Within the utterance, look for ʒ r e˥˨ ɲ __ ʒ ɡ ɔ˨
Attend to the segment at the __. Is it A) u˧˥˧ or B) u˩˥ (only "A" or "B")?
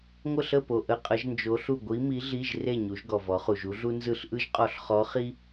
B